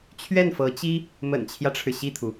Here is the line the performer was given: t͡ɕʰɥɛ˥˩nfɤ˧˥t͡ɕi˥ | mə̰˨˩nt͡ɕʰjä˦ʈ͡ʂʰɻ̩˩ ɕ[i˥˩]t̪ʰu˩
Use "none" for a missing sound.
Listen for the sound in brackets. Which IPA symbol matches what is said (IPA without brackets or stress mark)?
i˥˩